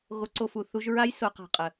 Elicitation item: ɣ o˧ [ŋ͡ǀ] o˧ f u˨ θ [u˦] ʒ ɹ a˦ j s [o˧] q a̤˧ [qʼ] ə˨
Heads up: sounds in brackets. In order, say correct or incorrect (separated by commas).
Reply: incorrect, incorrect, correct, correct